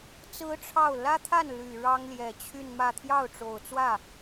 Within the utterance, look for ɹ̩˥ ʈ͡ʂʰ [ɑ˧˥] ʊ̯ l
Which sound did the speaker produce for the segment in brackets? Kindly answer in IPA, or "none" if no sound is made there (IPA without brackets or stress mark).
ɑ˥˩